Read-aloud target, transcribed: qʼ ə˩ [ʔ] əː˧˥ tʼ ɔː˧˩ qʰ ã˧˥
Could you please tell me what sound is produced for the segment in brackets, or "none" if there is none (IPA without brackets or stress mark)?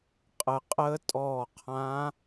qʼ